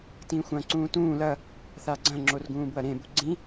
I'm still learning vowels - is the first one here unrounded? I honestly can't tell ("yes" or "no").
yes